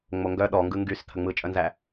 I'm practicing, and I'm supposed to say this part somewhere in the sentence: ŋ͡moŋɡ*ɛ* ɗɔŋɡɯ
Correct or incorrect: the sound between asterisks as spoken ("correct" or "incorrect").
incorrect